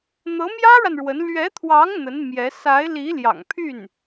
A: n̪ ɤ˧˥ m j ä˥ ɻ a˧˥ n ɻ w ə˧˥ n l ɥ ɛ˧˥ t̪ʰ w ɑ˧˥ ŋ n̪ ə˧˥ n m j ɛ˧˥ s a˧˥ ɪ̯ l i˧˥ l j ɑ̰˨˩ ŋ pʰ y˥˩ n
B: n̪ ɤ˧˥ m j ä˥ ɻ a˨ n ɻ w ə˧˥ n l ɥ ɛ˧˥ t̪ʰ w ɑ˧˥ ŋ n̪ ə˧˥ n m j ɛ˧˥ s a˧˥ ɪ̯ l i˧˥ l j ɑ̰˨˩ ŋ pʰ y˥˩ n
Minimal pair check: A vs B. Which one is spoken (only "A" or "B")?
B